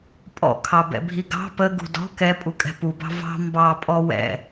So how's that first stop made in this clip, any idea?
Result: ejective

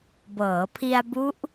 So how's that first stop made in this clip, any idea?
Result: plain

